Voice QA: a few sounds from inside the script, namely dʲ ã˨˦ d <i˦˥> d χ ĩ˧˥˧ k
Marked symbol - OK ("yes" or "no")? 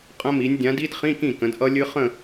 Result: yes